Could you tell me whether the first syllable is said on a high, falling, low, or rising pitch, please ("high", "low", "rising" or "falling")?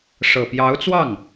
low